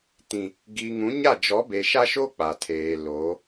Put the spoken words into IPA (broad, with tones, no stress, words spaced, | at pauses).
tĩ˨ | ɡiː˨ŋũ˨˦ɲa˦˨ d͡ʒɔ˨˦be˨ʃa˦ʃoː˦ k͡pa˨tʰeː˨loː˨˦